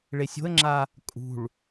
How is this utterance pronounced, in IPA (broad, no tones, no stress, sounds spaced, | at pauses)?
ɭ e sʲ o̤ ə̯ ŋ͡ǁ a | kʼ ṳ ɭ